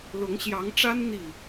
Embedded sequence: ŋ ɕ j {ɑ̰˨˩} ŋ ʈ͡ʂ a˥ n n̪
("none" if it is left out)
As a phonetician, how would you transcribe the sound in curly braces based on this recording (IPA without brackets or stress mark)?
ɑ˧˥